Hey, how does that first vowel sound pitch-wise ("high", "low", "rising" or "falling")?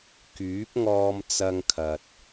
rising